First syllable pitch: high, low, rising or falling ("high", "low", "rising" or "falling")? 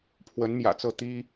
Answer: rising